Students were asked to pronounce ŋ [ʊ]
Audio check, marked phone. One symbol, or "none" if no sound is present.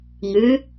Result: ʉ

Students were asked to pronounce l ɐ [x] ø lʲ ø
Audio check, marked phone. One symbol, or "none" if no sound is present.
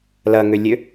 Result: ŋ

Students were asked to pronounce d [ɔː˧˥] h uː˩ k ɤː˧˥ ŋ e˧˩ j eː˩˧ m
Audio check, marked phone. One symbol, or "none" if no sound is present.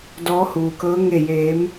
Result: ɔː˧˥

